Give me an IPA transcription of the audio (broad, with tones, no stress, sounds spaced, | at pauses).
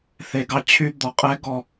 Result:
θ e˨ ɡ ɑ˦ t͡ɕʰ y˦ d̪ ɔ˨ qʼ ɛ˦ ɡ ɔ˦˨